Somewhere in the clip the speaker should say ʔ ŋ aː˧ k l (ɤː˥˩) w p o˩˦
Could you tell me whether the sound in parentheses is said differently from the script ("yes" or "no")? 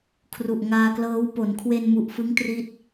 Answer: yes